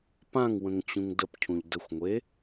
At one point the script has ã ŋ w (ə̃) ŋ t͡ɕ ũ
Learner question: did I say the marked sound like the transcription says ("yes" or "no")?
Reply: yes